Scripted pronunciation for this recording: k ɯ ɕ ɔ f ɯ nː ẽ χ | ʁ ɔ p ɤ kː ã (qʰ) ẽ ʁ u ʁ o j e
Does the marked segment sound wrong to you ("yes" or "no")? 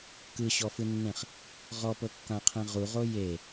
no